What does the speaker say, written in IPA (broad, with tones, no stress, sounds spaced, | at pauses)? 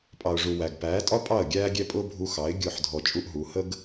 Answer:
pʼ ɑ˨ ʊ̯ ʐ u˨ w æ˨ ɡ p æː˨˦ tʼ ɒ˦ pʼ ɑ˦˨ ə̯ ɡʲ æː˦ ɡʲ ɛ˦ pʼ ʊː˦ bʱ u˧ x ɑ˨˦ ɪ̯ ɡʲ ʊː˦˨ ħ dʱ ɔ˧ t͡ʃʼ u˦ ʔ ɦ u˨˦ h ə˦ ɡ